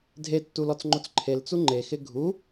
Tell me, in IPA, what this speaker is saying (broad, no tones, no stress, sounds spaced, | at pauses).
dʱ e tː u l ɔ t͡s ŋ͡ǃ o t͡s ǃʰ e l t͡s u ŋ͡ǃ e x ɪ ɡʱ u